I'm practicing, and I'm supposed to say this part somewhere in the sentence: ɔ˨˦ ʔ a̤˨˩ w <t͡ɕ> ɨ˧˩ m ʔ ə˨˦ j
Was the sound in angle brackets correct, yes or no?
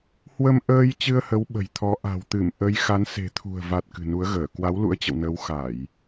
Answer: no